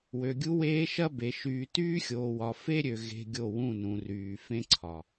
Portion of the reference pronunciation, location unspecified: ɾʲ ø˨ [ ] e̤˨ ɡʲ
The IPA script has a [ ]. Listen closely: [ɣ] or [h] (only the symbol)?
ɣ